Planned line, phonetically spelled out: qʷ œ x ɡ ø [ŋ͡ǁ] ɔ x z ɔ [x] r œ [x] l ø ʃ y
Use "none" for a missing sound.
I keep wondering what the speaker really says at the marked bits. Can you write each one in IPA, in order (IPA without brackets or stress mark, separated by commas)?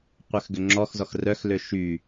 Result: ŋ͡ǁ, x, x